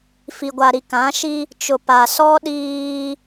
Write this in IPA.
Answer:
f i˨ ɡʷ a˨ ɾ i˨ k ã˨˦ ʃ i˦ | t͡ʃ ʊ˨ p a˨ s ɔ˦ ɗ iː˦

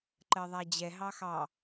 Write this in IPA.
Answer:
ǃ ɜ ðˤ æ d͡ʑ ɛ ɦ ɑ x ɑ

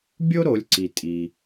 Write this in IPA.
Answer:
bʲ o˥ ɾ o˩˧ lʲ ǀ i˩ tʼ i˩

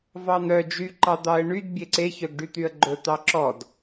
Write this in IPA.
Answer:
v ɑ n̪ œ d͡ʒ y ǃ ɑ d̪ ɑ ə̯ ɳ y d bʲ e ǀ e ç œ ɡ ɖ y t̪ y ə̯ ɡ͡ǃ ɵ t̪ ɑ ǁ ɔ d

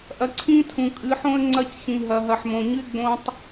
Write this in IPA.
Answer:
ʔ ɐ˨ ǀʰ ĩ˦ tʰ ũ˨ kʼ ɨ˨˦ ħ õ˦ ə̯ ŋ͡ǀ ɐ˦ c ç ĩ˨ ɦ ɐ˨ ɦ ɐ˨ ħ m õ˨ ɲ ɨ˦ ɪ̯ ɡ͡b õ˦ tˤ

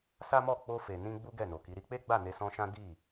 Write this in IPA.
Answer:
s a˦ m ɔ˦˨ k͡p o˧ f e˨ n ĩ˧ ɡ͡b u˦ ɡ ɛ˦˨ n o˨ k i˨˦ ɾ i˧ k͡p e˦ ɡ͡b a˦˨ n e˧ s ɔ̃˧ ʃ ã˦ d i˦˨

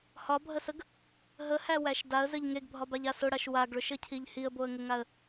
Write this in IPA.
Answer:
h ɒ bʱ ə s ə ɡ | ɦ ə h æ w æ ʃ d a ə̯ z ɘ ʎ ŋ e ɡ bʱ ɒ b a ʎ a s ʊ ɽ a ʃ w a ɡ ɭ ʊ ʃ ɘ cʰ i ʎ h i ə̯ b o ə̯ ŋ ʊ ŋ a ə̯

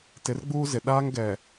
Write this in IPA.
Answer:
t ɪ˨˦ r ɡ͡b uː˦ z ɪ˨ ɗ aː˦ ŋ ɡ ɛ˨

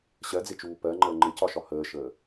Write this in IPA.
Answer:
ɕ ɜ d͡z ɪ t͡ʃ uː p ɜ ŋ͡ǃ əː ŋ͡ǃ ɪ c ɒ ʃ ɒ h əː ʃ əː

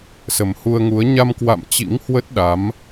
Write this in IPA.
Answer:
s ə˨˩ m h u˧ ə̯ ŋ u˨˦ ə̯ ɲ a˧ m k w a̰˧˨ m t͡ɕ ḭ˧˥ ŋ h w ə˦˥ t̚ ɗ a˨˦ m

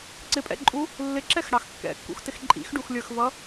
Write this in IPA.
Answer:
ǀ ɪ pʼ ɛ̰ ǃʼ u | lː ɪ ǁ ɛ x ɽ ɑ x kː ɛ̰ kː ṵ x t ɪ x ǃʼ ḭ x ɖ u x lʲ ə˞ x v ʌ

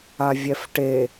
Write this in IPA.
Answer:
a vʲ ɛ f ʈ e

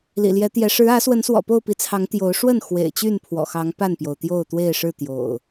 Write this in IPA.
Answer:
l ḭ˨˩ l j ɛ˨˦ t̪ j ɛ˨˦ ʂ ɻ̩˨˦ ä˨˦ s w ə˨˦ n s w ɔ̰˨˩ p o˥˨ ʊ̯ p i˨˦ t͡sʰ ɑ˨˦ ŋ t̪ j o˨˦ ʊ̯ ʂ w ə˥˨ n x w ḛ˨˩ ɪ̯ t͡ɕ y˥˨ n pʰ w ɔ̰˨˩ x ɑ˨˦ ŋ p a˥˨ n p j o˩ ʊ̯ t̪ j o˥˨ ʊ̯ t̪ w e˥˨ ɪ̯ ʂ ɻ̩˥˨ t̪ j o̰˨˩ ʊ̯

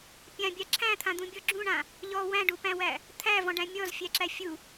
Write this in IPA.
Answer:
pʲ ã bʲ a ǁʰ æ̃ t̪ʰ ã d̪ ũ bʲ ɔ ɡ͡ǁ ũ ɳ ã | ʎ ɔ w æ̃ ɖ u p æ̃ w æ | t̪ʰ æ v ɔ̃ ɖ æ̃ mʲ ɔ z fʲ æ ǁ æ fʲ u

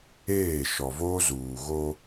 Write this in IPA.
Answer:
eː˦˨ ʃ ɔ˨ v oː˦ z uː˨ ɣ o˦

